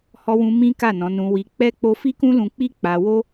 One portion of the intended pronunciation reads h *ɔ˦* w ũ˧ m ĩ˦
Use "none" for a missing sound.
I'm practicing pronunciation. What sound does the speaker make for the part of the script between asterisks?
ɔ˧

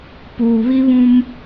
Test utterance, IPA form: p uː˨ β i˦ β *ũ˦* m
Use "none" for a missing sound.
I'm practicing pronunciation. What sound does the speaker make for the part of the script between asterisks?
ũ˦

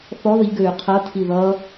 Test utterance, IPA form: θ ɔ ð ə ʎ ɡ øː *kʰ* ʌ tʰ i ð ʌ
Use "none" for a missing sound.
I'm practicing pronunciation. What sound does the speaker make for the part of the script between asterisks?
qʰ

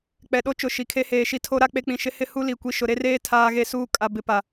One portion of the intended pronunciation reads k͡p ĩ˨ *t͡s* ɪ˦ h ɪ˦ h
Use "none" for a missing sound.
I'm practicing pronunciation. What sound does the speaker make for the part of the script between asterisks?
ʃ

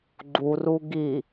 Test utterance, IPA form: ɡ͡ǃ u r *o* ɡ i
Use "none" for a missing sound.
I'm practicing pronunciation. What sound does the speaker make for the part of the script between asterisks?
u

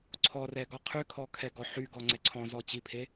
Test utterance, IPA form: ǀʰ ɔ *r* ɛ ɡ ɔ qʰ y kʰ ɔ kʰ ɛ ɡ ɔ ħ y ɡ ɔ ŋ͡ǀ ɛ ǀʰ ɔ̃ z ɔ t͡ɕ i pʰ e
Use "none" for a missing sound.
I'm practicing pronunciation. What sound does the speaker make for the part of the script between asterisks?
r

